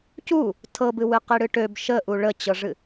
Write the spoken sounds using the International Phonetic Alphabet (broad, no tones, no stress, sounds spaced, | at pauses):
c u | tʰ ɤ b ɨ w ɨ q i ɽ ɨ ʈ ø b ʃ ə ʔ u ɭ ə t͡ɕ ɤ ʐ ɨ